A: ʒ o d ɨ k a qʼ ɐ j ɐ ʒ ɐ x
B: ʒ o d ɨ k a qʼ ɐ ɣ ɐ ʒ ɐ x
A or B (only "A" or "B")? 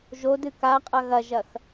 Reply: B